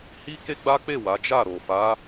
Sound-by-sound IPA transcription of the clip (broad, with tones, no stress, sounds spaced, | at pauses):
h i˦ k e˦ ɡ͡b a˦ k͡p e˦˨ w a˨˦ d͡ʒ a˦˨ ɾ o˨ f a˨˦